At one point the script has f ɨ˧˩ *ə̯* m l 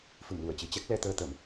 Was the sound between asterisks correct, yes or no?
no